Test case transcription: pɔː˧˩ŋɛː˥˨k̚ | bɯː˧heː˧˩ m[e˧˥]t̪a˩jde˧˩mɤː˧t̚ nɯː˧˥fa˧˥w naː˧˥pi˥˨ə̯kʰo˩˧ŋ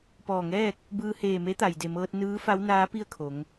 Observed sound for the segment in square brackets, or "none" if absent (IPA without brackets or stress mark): e˧˥